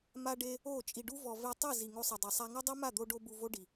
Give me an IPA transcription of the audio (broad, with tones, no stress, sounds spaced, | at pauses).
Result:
m a˧ ɖ e˧ | o˦˨ t͡ʃʼ i˨ ɖ u˧ v ɔ˨ v e˧ tˤ i˦˨ z i˨ ŋ o˧ sˤ ɛ˨ dˤ ɤ˨ sˤ a˧ ŋ o˦ dˤ i˦ m a˦˨ d̪ o˧ ɖ o˧ b u˧ v o˦ ɖ i˨